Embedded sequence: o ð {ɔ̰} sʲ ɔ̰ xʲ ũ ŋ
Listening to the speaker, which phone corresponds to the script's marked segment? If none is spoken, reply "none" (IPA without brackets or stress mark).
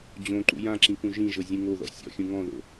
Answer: ɔ̰